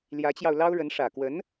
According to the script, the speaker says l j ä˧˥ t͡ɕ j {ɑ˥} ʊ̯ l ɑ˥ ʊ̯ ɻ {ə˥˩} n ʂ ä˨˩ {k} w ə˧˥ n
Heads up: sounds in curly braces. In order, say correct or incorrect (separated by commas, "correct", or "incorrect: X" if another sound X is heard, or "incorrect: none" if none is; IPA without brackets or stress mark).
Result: incorrect: ɑ˧, incorrect: ə˧˥, correct